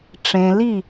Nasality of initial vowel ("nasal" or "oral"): nasal